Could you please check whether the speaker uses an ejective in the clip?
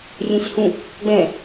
no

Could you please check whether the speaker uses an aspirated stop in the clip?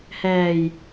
no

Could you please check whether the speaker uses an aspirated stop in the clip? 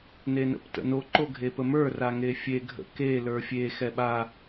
no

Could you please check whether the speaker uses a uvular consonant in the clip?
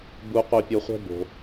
yes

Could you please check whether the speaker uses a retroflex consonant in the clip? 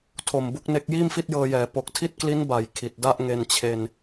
no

